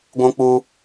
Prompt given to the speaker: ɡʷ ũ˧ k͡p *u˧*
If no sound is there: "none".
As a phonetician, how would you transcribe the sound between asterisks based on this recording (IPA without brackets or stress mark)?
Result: u˧